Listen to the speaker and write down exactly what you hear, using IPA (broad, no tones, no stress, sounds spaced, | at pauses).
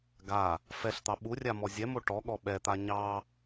ɡ a | f ɛ ɬ t̪ ɑ ɓ u rʲ a m ɔ zʲ ɛ m o ʈ ɔ ɠ ɔ ɓ ɛ t̪ a ɲ ɑ